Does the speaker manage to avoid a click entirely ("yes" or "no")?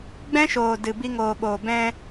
yes